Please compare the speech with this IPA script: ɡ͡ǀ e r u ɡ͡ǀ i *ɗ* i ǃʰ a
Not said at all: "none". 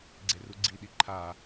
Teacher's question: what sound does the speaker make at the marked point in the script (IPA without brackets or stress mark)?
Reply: ɗ